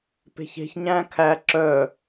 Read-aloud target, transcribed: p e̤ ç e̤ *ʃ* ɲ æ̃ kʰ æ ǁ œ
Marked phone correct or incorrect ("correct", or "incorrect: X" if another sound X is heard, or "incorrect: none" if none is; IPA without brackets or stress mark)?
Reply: incorrect: ç